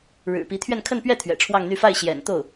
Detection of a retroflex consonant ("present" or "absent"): present